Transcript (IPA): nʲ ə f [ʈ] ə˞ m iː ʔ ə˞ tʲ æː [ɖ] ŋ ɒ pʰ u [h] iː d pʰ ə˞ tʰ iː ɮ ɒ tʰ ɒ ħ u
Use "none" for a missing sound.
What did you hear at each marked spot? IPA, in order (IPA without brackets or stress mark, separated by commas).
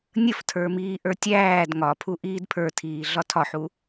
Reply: tʰ, d, ʔ